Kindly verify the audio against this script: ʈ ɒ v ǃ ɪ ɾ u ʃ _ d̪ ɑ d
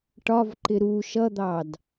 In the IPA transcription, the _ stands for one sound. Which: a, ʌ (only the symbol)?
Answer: ʌ